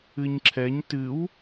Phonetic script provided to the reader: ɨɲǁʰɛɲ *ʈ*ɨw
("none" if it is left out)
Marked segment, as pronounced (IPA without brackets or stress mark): t